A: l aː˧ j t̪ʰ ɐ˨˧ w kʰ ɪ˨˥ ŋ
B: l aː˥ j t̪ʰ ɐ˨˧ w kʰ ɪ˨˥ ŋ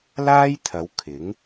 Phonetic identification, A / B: B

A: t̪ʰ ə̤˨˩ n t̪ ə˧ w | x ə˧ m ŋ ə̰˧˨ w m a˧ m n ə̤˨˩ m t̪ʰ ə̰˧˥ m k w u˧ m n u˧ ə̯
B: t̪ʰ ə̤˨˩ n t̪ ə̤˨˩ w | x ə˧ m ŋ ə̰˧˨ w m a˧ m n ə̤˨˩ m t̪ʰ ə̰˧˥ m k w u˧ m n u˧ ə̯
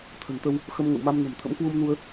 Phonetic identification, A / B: A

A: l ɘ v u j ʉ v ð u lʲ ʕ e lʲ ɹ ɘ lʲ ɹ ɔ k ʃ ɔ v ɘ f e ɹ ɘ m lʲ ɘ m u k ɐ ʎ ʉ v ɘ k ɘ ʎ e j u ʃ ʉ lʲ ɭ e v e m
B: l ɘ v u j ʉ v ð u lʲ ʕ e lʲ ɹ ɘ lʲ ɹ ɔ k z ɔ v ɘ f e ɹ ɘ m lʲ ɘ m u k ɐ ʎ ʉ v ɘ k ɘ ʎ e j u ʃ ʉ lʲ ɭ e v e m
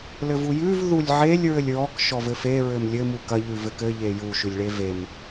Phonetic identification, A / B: A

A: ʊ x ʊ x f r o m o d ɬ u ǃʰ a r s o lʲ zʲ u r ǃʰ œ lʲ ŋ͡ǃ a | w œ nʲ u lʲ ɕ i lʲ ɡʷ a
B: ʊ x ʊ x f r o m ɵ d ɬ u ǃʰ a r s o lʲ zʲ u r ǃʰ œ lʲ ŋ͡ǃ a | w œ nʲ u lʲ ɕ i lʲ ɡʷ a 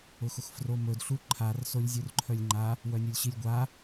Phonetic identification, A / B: B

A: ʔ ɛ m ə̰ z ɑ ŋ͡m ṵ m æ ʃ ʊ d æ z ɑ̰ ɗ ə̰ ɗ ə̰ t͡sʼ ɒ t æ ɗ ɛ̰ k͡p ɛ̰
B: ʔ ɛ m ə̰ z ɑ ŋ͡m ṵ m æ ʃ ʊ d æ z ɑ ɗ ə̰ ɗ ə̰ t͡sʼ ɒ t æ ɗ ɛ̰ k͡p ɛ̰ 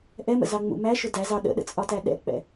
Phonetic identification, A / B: B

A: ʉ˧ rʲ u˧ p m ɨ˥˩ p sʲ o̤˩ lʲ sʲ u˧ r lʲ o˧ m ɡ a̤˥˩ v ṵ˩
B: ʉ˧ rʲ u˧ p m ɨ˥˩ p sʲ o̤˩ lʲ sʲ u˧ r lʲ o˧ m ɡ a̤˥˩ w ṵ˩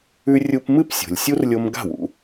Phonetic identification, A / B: B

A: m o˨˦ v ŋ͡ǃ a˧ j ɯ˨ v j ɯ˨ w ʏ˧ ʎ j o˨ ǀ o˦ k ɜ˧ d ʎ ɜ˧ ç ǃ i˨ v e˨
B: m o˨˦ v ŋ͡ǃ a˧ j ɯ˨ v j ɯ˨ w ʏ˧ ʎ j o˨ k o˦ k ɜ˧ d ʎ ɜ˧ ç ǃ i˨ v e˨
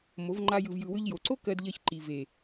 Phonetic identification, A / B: A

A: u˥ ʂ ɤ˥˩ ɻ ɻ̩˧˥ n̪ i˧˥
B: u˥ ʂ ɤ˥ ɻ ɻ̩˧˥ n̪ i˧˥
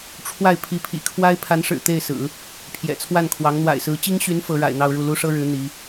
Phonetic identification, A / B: B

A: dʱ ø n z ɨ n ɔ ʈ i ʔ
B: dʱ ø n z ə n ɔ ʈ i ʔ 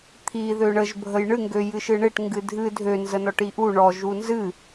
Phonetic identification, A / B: B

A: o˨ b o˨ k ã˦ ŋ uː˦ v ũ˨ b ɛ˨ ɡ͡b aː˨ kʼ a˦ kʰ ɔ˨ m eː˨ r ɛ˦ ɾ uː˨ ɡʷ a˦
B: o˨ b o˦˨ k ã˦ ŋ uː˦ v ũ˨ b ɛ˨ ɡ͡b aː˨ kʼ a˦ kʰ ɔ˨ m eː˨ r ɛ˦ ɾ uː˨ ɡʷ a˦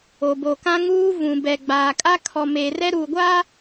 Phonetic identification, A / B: A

